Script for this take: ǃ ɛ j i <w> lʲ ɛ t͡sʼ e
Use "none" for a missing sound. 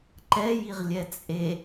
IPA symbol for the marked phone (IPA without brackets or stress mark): ʁ